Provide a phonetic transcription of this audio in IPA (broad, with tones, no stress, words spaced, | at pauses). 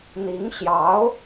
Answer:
n̪i˧˥ŋ ɕjɑ˧˥ʊ̯